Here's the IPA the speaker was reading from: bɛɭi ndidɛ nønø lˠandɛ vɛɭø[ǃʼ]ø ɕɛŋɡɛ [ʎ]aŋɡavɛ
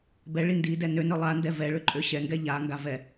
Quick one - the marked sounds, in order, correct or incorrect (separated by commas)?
correct, correct